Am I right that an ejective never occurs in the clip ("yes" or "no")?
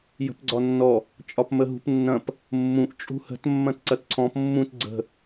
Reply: no